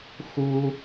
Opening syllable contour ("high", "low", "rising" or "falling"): high